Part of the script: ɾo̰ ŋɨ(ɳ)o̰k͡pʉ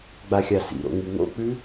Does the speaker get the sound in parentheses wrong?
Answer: yes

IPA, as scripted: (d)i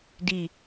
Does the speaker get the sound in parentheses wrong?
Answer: no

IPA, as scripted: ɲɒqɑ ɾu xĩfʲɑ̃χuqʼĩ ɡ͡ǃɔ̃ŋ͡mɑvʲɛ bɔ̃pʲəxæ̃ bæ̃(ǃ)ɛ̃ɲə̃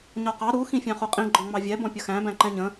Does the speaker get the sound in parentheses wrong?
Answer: no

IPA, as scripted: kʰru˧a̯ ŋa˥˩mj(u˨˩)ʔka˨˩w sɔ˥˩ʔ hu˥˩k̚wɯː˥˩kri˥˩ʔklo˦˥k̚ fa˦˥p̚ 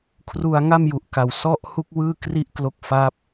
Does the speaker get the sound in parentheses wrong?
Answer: no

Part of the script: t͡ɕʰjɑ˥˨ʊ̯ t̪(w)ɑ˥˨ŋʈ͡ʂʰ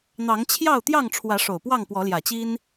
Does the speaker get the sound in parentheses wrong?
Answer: yes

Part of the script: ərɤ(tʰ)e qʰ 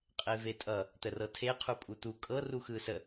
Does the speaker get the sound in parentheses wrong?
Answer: no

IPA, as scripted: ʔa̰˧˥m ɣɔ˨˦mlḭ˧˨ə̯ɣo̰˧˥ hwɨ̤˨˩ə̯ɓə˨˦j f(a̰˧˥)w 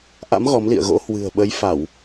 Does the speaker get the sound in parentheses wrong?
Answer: yes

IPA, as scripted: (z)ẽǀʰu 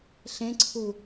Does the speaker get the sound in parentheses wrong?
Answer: yes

